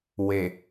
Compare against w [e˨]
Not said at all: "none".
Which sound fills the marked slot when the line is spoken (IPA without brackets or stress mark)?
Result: e˨